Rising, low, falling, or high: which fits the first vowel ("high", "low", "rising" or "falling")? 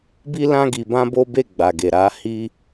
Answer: high